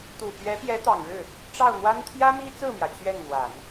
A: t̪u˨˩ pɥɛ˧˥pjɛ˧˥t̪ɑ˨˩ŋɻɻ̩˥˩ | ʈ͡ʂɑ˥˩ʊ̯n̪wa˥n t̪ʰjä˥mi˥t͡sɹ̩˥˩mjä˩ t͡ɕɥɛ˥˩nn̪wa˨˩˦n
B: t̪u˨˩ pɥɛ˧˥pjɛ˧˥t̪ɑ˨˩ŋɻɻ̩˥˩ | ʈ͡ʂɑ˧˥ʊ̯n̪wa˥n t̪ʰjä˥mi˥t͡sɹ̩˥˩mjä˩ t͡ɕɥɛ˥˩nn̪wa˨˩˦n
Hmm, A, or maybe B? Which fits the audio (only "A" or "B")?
A